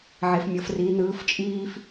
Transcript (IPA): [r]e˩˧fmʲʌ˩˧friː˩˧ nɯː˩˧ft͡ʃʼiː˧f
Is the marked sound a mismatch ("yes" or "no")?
yes